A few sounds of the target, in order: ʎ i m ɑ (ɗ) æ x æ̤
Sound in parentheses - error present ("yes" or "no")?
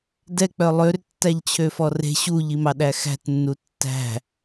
no